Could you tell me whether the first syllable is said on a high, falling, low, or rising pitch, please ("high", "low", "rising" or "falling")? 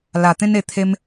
low